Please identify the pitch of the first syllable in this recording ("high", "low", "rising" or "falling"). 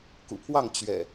low